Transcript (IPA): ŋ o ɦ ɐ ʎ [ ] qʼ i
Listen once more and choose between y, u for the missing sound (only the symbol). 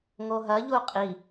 u